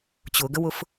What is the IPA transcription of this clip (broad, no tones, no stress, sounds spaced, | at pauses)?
t͡ɕ ʊ ɡ ə w ʊ f